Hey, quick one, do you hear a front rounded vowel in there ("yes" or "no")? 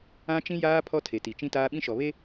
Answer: no